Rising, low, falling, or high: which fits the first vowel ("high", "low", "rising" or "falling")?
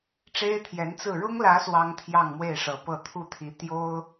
high